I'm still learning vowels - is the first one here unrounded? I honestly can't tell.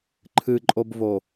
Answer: yes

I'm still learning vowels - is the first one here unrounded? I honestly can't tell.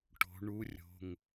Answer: no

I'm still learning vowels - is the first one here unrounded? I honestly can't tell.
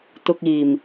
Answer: no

